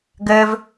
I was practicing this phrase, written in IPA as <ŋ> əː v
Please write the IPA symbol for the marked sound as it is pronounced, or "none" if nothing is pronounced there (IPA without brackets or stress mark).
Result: ɡ